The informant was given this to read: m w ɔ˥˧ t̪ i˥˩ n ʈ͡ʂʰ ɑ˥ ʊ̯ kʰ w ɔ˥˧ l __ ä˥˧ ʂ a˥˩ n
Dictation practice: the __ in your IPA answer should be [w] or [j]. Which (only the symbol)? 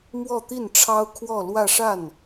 w